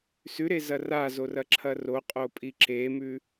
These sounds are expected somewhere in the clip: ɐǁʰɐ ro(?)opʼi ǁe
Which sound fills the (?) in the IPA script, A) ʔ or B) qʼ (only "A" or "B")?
B